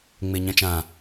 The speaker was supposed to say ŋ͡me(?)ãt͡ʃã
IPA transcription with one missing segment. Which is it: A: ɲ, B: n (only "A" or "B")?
A